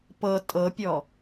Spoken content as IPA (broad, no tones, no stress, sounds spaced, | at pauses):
p ɤ tʼ ɤ pʲ ɔ